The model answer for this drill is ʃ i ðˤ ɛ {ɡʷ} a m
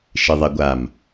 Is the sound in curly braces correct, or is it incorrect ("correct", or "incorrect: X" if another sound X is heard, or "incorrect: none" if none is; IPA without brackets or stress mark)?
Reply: correct